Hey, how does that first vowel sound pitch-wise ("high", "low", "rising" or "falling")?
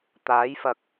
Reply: rising